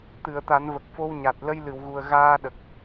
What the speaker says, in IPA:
t̪ɨ˨˩˨ə̯t̪a˨˩˦nvə˨˩k̚ fo˧wɲa˨˩t̚ lə˧jlɨ˨˩˨wɣu˨˩ə̯ ɣaː˧ɗə˨˩k̚

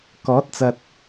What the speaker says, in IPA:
kɔː˨˥t̚t͡sɐ˨t̚

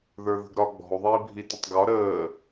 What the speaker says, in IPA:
ðə˞ðə̤ɡɾɒ ɡ͡bɔ̤u̯ðˤiː bʱitətˤɡɒ ɾəː

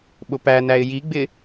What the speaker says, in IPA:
ɓʊpænæɪ̯ jiɡ͡bɪ

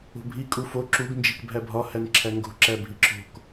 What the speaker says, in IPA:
o̤bʱi kʼufo ǁuɡ nd͡ʒikbʱæbʱɒ hænǁʰæŋɡo̤ ǁæbʱiǁʰo̤k

